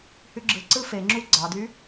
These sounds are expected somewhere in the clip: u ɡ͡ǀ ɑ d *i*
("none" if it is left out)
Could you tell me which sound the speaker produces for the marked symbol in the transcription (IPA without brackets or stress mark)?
y